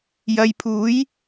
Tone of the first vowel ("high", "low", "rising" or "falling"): low